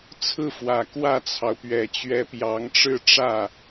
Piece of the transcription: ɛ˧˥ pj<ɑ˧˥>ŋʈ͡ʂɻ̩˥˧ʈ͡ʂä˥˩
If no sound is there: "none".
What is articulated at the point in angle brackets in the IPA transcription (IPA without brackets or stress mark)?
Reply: ɑ˧˥